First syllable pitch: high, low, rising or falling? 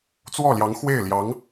falling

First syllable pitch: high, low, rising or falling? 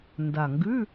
low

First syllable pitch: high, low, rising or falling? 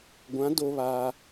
rising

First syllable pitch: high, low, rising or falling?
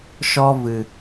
high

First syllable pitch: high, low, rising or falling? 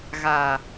low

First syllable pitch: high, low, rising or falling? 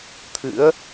rising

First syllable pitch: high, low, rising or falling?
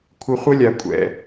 high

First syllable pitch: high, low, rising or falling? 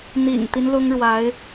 low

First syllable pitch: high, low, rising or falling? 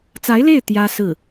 rising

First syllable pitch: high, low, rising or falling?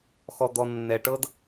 low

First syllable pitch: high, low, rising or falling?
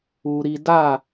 low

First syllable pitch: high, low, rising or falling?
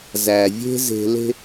low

